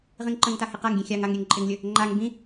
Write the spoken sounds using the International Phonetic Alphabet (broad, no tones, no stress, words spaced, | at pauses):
ʁĩŋǃə̃ŋta hɪqaŋɡʲẽ xʲaŋaŋ ɾʲeŋǃʼɪŋlʲə | ŋ͡ǃaŋ bĩ